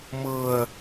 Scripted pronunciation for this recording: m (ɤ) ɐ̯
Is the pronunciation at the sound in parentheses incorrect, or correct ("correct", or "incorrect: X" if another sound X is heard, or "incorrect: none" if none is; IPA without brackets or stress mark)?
correct